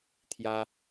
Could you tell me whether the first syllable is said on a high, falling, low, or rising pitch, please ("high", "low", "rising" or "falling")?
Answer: high